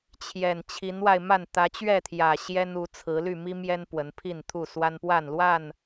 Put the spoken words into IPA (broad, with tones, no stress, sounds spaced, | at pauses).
t͡ɕʰ j ɛ˨˩ n t͡ɕʰ i˨˦ n w a˧ ɪ̯ m a˥˨ n t̪ ä˨˦ t͡ɕ ɥ ɛ˥˨ t̪ʰ j ä˨˩ ɕ j ɛ˦ n u˨˦ t͡sʰ ɹ̩˨˦ l y˥˨ m i˦ m j ɛ˦ n p w ə˨˦ n pʰ i˥˨ n t̪ʰ u˥˨ s w a˦ n p w a˥˨ n l w a˥˨ n